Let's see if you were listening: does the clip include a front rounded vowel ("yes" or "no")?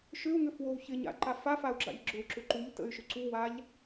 yes